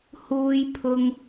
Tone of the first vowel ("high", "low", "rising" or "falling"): high